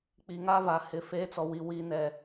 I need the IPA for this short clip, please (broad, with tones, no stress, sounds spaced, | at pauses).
k͡p i˨ ŋ a˦ v a˨ h ɪ˨ f eː˦ t͡s ɔ˨ w i˦˨ w i˦ n ɛ˦˨